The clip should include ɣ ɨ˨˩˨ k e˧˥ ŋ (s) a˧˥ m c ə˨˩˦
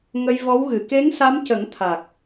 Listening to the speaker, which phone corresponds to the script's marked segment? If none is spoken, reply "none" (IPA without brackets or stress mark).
s